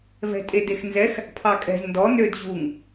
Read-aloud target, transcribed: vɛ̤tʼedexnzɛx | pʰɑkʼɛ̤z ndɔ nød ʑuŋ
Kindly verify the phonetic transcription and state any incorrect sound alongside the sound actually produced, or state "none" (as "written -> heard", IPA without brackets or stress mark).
none